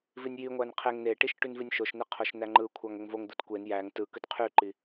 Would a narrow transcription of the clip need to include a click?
yes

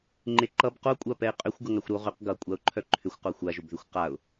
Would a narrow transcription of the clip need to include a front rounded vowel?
yes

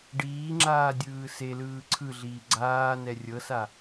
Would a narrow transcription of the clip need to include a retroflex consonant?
yes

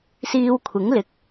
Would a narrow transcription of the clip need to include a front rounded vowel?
no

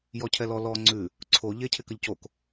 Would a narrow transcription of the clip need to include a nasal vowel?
no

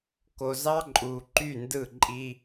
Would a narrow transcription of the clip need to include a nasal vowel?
no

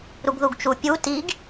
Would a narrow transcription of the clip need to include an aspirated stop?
no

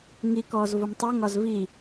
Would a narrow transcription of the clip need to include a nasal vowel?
no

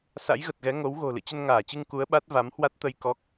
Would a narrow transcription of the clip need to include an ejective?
no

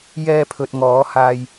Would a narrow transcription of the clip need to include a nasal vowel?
no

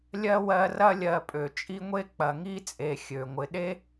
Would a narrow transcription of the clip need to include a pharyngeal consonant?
no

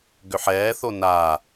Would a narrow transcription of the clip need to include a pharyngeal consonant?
yes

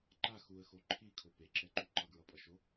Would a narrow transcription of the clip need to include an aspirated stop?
yes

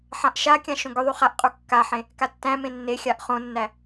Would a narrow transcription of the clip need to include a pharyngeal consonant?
yes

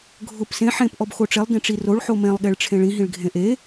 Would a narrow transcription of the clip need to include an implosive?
yes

